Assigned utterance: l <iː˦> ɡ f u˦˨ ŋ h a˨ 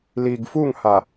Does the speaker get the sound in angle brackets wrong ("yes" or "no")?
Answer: yes